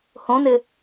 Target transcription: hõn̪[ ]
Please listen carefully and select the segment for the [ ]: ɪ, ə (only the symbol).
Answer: ɪ